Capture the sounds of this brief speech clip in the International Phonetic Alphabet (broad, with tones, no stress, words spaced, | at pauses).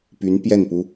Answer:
py˧˥npjɛ˥˩npu˥